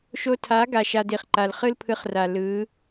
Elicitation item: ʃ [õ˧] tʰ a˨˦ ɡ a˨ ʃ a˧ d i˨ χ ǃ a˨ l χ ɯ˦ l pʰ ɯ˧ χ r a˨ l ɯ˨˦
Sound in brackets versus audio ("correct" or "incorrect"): incorrect